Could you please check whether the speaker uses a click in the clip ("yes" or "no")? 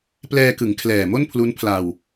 no